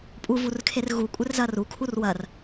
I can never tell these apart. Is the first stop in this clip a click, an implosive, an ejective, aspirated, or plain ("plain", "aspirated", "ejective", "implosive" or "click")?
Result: ejective